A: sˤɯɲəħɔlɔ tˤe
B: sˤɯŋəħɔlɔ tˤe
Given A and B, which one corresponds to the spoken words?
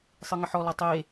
B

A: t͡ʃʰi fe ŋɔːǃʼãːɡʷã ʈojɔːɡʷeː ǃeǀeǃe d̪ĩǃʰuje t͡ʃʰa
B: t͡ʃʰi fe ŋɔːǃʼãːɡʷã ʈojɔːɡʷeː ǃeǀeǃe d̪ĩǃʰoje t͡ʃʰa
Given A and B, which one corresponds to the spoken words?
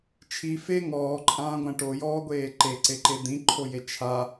B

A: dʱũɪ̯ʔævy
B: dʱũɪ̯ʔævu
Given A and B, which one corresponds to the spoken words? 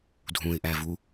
B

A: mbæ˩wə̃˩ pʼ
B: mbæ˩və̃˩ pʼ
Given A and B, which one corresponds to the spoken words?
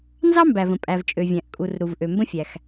B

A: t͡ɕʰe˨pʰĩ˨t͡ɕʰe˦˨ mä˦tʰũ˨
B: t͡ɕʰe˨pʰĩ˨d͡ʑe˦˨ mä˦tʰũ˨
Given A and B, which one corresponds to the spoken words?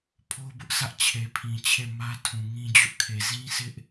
A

